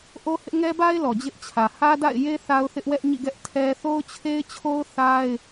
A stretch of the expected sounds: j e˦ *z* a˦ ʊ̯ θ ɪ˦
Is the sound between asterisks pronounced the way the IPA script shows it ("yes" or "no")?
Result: no